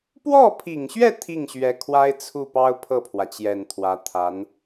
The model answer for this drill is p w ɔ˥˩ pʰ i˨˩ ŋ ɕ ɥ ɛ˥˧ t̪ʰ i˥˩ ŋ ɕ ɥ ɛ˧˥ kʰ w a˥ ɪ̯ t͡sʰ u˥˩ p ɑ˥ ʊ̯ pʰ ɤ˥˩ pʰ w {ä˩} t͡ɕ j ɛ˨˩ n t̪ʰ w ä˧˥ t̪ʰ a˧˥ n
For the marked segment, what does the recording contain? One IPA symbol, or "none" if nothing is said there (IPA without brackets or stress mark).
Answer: ä˩